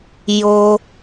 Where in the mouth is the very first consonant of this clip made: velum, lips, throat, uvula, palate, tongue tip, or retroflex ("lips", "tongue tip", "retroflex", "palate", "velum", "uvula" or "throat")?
palate